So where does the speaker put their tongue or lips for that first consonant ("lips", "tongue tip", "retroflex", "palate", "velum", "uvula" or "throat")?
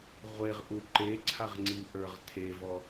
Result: uvula